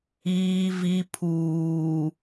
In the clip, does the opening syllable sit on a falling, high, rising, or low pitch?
low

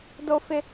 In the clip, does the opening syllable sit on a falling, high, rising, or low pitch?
high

